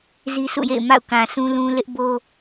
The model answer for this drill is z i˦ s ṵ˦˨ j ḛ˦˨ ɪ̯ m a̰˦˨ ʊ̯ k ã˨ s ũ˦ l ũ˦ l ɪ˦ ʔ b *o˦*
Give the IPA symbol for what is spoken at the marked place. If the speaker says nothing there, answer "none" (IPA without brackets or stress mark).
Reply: o˦